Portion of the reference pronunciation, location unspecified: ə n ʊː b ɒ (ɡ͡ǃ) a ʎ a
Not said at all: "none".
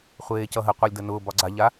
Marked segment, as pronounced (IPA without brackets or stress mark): ɡ͡ǀ